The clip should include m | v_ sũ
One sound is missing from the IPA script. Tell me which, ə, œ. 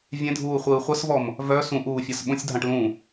œ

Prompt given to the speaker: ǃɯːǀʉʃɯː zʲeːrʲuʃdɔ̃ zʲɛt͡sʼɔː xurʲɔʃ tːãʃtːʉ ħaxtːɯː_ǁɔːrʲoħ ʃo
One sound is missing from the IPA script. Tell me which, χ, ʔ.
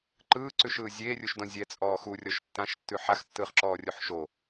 χ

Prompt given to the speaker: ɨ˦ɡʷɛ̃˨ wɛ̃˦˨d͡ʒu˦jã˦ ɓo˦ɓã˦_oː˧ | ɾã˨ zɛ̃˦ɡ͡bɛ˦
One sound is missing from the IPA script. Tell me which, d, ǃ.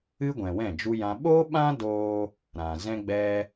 d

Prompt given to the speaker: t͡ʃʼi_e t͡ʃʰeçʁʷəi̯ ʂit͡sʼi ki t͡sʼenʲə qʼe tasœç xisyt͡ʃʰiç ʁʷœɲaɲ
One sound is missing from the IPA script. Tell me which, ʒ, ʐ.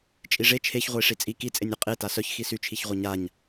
ʐ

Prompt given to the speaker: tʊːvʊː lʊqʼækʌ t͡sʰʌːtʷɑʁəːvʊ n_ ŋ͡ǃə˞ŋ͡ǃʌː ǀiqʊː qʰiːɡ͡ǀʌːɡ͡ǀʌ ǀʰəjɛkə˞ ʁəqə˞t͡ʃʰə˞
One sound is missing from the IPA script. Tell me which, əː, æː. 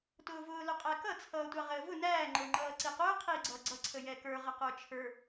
æː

